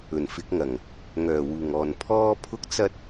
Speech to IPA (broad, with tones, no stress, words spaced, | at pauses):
ɵ˨˩nfɪ˨˥k̚ŋɐ˨˩ŋ | ŋœː˨˩wuː˨˩ŋɔː˨˩n pʰɔː˥ pʰʊ˥k̚ t͡sɐ˥t̚